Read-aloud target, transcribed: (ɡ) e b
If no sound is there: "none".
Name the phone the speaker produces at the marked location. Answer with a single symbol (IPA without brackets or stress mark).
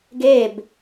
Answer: ɡ